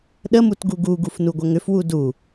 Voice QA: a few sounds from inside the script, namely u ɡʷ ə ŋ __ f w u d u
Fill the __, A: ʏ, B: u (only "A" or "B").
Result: A